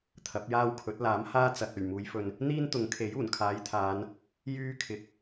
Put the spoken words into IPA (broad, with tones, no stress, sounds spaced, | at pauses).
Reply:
t̪ʰ ɐ˨˥ p̚ j aː˥ w kʰ ɵ˨˥ t̚ l aː˨˥ m h aː˥ t͡s ɐ˨ t̚ ɵ˨˩ ɥ m uː˨˧ j f ɵ˨ n | n̪ iː˥ n t̪ ʊ˨˥ ŋ kʰ e˨˥ j uː˨˩ n kʰ aː˨˥ j t̪ʰ aː˨˧ n | j yː˥ kʰ ɪ˨ k̚